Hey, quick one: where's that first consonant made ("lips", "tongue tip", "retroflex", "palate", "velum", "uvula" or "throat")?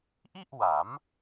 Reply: throat